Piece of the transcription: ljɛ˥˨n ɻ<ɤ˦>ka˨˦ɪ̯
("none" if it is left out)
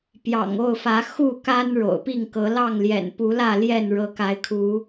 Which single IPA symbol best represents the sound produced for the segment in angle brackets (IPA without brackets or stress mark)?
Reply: ɤ˨˦